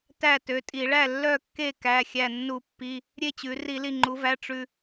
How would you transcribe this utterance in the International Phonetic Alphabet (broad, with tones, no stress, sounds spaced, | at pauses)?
t æ˥˨ t ø˩˧˩ tʼ i˧˩˧ ɭ æ˥˨ lː œ˥˨ kː e˥˨ k æ˩˧˩ xʲ æ˧˩ nː u˧˩˧ pː i˩˧˩ | ɾʲ e˥˨ t͡ɕ ʉ˩˧ r i˧˩˧ l i˧˩ ŋ͡ǃ u˩˧ v æ˩˧˩ ʈ͡ʂ ʉ˧˩